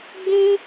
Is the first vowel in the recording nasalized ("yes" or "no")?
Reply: yes